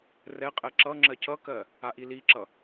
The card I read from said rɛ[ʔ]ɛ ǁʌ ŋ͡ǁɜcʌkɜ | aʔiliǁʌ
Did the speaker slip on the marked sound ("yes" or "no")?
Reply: yes